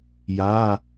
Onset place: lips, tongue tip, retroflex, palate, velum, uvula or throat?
palate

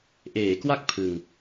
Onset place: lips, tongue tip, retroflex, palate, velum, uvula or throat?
throat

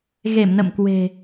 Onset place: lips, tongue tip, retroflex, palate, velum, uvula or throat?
velum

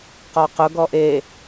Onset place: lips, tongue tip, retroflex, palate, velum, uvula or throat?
uvula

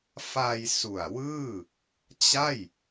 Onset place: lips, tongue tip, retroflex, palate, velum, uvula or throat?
lips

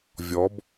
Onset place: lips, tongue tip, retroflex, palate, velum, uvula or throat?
lips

